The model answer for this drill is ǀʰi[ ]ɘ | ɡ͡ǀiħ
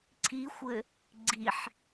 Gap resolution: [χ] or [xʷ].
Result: xʷ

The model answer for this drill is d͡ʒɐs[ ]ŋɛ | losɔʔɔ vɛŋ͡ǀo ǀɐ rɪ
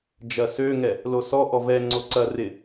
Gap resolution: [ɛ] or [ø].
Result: ø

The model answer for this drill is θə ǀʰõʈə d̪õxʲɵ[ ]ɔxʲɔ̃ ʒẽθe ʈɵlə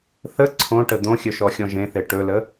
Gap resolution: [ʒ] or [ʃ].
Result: ʃ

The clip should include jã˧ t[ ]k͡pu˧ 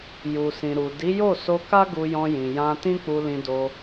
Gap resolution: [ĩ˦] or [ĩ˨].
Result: ĩ˦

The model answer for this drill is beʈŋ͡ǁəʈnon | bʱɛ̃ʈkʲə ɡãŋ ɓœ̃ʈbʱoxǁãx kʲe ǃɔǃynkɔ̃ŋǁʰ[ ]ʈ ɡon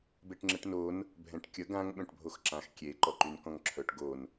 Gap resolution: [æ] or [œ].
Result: œ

